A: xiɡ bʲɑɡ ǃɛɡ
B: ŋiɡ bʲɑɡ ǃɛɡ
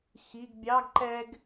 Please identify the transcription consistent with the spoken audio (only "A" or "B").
A